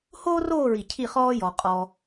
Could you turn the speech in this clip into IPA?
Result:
h oː˥ r oː˥˧ ɹ i˧˩ cʰ i˥˧ χ ɔː˥ j ɔ˧ qʼ ɔ˧

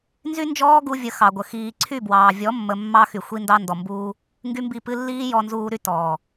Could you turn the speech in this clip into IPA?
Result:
n z y˦ n d͡ʒ ɔː˦ ɡ u˧ vʲ ə˨˦ x ɑ˨ ɡʷ ə˨ x iː˨ ǀʰ y˦˨ b w ɑː˨ vʲ ɔ˨˦ mː ə˨ mː ɑ˦ x y˨ xʷ i˧ n d ɑ˧ n d ɔ˨ m b uː˧ | ŋ ɡ y˦ m b i˦˨ p ɨ˦ lː iː˦ j ɔ˧ n z uː˧ ɾ y˦ t ɔː˨

